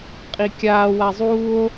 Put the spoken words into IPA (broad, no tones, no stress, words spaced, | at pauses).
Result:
qʼikʲaː wazˤuːo̯